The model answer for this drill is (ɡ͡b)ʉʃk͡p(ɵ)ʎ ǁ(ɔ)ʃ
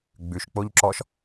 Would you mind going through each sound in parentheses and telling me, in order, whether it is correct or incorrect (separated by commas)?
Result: correct, incorrect, correct